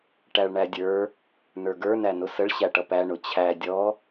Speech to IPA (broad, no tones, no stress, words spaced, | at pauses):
ʈæɭɳædʲə˞ | nə˞ɡə˞ nænʊsəɭ ɕæʈʌpæ ɳʊt͡ɕʰæ dʲɔ